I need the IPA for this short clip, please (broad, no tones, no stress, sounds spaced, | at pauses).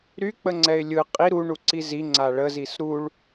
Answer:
ɾ y k͡p ə ŋ͡ǀ ɛ ɪ̯ lʲ ɯ qʼ i ɾ u ɳ u ǀ i z i ŋ͡ǀ a ɭ ə z i s ɾ u ɭ